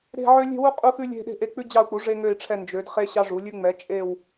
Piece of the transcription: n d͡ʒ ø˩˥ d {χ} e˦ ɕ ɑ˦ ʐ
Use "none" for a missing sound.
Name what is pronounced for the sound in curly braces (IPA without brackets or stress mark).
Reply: χ